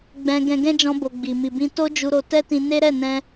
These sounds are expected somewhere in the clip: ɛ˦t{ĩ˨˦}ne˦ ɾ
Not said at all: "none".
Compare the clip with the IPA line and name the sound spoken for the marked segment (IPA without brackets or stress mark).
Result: ĩ˧